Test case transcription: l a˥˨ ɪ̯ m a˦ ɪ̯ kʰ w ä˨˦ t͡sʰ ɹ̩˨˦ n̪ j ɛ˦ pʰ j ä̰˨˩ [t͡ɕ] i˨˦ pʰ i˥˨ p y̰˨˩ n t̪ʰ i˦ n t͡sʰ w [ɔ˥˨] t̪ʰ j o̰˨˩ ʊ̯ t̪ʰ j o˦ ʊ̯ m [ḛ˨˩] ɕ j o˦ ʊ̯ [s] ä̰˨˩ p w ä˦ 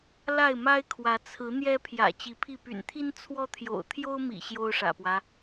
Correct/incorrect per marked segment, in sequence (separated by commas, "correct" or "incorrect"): correct, incorrect, incorrect, incorrect